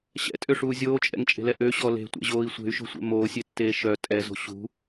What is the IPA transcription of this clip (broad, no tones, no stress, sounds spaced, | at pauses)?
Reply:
ɕ ɛ̰ tʼ ø ʂ uː zʲ oː t͡ʃʼ ɛ̰ ŋ t͡ʃʼ e̤ l ɛ ʔ ø ɕ ɔ l e̤ tʷ ɛ̰ ʑ oː i̯ sʷ e̤ y̯ ʃ o̤ sʷ ɛ̰ m oː sʲ e tː eː ʃ œ tʼ ɛ z o̤ ɕ ṳ